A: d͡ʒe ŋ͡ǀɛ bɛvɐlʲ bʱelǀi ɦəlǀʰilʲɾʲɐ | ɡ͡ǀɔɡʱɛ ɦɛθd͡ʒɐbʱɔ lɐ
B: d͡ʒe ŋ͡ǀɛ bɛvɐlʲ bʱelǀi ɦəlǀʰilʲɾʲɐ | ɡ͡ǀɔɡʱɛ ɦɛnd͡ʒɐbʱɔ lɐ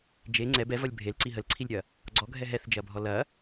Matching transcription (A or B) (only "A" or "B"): A